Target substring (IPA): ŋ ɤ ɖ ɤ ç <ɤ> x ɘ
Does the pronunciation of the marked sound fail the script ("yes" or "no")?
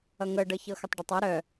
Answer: no